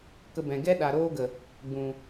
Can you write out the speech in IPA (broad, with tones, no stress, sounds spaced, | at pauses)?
k ə˧ b ɛ̃˨ ɡ ɛ˦ ɗ a˨ ɾ oː˦ ɡ ə˨ | ɡ͡b ũ˨